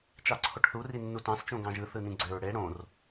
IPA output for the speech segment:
t͡ʃɑǀʰoʈθu rinːutɑ̃s t͡ʃõɡɑ̃ʒɯ θɯnĩɡ͡ǀøɹ ɽe ɽõr

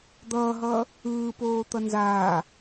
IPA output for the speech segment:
d̪ʌːɦʌː | ɯːpoːt̪ʌ nzaː

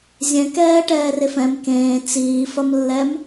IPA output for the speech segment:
zʲɛ̃kɛːʈɛːref ɛ̃m kẽː t͡siːfɐmlːɛm

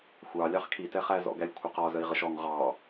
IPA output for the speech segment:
xʷɑlʲɑχ kʰitɛχæ zɔ̰ɡælʲkʷʰəqɒ zəi̯ʁəʃɔŋ ʁɑ

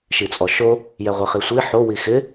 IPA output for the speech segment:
ʃit͡sʼɔʃo | jɛʁʷɪχisʷi ħo wixɪ

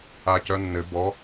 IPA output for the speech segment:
acœnːɘ bɔ

